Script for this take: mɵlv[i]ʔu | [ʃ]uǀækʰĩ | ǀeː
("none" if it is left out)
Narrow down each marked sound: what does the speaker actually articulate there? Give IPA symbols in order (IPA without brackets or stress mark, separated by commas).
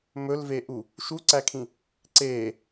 e, ʃ